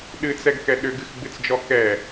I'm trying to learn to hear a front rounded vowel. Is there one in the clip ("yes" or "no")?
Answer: yes